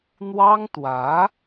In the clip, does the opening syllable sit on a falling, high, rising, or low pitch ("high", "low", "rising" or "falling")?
high